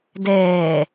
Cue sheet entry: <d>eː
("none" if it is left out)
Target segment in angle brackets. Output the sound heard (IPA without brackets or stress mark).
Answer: d